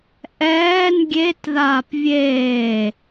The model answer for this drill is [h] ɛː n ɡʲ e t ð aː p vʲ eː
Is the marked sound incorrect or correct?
incorrect